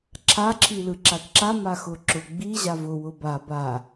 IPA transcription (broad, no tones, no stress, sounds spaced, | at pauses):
ǁʰ a ǁʰ i l ɯ ǁ a t ǁ a m a x ʊ ǁ ʊ ɡ͡b i ʑ a v ʊ w ʊ b a b a